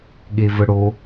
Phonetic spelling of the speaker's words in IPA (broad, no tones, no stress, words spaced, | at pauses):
ɠevəɽo